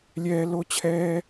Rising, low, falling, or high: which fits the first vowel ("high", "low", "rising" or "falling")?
high